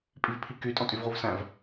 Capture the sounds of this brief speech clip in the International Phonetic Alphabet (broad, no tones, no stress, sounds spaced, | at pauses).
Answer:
pʼ i v pʰ i k y tʼ ɔ̃ tʼ y v ʁ u v s æ̃ v